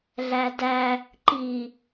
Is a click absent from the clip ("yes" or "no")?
no